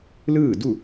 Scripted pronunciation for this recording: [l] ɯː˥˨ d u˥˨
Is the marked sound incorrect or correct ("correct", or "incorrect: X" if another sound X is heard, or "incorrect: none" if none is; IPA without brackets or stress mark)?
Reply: correct